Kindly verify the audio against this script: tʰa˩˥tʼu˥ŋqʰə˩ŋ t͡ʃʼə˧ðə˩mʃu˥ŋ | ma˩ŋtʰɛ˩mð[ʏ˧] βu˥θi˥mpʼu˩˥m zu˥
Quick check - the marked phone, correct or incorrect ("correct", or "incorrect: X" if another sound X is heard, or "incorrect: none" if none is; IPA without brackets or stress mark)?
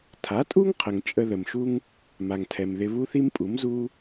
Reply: incorrect: ɪ˧